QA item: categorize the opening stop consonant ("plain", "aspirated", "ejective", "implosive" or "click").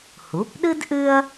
plain